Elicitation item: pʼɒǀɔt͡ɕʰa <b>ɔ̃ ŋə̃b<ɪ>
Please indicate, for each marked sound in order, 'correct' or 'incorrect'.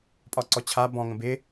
correct, correct

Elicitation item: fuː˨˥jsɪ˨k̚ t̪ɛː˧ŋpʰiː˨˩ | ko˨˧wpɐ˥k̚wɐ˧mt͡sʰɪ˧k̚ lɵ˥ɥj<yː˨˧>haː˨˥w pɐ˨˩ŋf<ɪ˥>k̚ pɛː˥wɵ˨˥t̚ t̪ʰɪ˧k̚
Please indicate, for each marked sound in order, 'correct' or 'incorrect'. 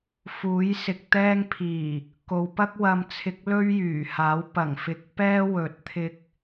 incorrect: yː˨˩, incorrect: ɪ˨

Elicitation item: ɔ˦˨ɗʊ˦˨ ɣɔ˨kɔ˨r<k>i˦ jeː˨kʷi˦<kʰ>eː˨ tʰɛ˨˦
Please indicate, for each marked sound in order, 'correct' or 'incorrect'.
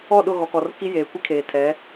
correct, correct

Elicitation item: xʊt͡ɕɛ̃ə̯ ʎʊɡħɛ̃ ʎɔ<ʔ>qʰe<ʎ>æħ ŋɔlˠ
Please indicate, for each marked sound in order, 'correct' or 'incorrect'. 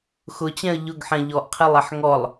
correct, incorrect: lˠ

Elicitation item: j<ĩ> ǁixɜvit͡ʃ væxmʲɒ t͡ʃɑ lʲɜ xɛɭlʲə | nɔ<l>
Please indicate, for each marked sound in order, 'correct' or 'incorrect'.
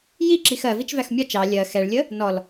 incorrect: i, correct

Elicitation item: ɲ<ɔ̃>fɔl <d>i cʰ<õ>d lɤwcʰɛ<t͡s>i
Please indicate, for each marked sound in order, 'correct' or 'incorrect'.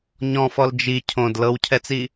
correct, incorrect: d͡ʒ, correct, correct

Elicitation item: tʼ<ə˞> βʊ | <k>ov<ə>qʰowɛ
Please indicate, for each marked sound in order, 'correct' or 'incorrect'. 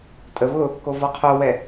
incorrect: ə, correct, incorrect: ɔ

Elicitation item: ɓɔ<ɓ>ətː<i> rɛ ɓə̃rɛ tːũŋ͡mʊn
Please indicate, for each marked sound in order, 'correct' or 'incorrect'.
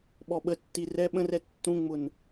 correct, correct

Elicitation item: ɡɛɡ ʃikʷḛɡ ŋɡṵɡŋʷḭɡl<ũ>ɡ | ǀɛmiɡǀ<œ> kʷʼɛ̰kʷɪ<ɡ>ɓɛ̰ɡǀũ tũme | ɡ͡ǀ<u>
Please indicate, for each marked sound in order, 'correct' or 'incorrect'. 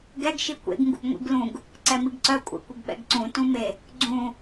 correct, correct, correct, incorrect: ũ

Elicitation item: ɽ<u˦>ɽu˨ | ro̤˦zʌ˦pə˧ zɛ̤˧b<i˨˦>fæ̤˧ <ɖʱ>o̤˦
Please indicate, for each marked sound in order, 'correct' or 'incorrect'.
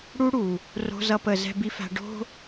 correct, incorrect: i˧, incorrect: ɖ

